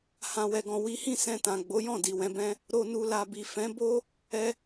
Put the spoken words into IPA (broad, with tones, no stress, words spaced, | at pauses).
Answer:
hã˨wɛ˨ɡɔ̃˨ wi˨˦hĩ˦˨ sɛ̃˧tã˨ɡ͡bo˨˦jɔ̃˦˨ di˨wɛ̃˨˦bɛ̃˦ | ɾo˨nu˨la˨bi˨ fɛ̃˨˦bo˦ | ɛ˧